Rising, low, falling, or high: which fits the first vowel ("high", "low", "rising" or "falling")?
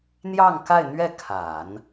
falling